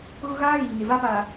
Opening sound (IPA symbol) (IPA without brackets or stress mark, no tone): ɣ